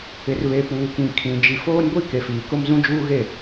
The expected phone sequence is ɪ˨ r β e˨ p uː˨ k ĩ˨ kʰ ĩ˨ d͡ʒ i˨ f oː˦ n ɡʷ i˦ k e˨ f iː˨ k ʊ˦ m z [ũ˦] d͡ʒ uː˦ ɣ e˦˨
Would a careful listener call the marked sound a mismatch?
no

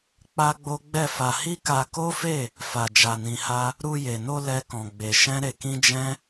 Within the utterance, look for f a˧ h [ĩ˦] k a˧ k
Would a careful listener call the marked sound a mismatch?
yes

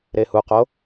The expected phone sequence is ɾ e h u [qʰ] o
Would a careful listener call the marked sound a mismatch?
yes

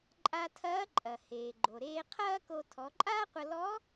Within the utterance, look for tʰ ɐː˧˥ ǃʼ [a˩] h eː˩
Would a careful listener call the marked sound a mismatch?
yes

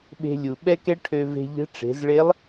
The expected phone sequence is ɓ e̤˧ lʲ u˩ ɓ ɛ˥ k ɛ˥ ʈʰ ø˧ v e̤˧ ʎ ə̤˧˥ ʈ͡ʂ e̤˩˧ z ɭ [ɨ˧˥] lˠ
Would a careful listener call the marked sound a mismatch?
yes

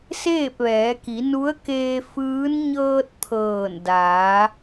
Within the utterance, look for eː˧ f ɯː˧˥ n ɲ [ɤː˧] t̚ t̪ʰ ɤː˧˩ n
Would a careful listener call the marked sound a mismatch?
no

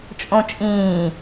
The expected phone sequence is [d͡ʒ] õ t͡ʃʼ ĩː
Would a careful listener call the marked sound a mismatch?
yes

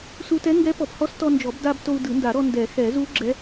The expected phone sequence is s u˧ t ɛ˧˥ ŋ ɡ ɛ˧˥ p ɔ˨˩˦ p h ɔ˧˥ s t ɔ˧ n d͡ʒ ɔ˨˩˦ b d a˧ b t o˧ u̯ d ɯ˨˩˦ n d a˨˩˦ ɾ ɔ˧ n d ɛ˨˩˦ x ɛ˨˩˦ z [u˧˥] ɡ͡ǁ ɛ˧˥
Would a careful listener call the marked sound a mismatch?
no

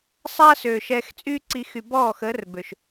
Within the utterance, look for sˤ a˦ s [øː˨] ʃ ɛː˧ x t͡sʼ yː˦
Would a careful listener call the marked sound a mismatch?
no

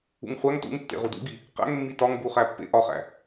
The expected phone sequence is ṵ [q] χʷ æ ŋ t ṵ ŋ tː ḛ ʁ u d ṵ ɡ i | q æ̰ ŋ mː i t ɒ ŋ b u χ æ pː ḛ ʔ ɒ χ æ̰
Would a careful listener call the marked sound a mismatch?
yes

